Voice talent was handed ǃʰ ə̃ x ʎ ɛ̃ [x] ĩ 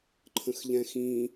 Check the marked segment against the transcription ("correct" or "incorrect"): correct